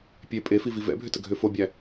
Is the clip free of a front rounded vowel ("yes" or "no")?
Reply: no